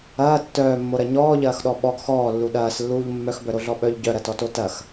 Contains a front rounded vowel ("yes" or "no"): yes